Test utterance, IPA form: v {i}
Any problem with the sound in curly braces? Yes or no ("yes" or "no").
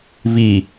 no